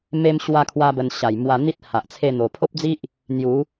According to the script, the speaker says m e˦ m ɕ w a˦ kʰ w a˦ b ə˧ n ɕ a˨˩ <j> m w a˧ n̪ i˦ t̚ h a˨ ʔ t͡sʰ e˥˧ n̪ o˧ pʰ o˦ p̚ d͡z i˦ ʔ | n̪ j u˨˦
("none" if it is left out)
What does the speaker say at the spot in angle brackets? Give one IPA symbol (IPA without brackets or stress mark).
j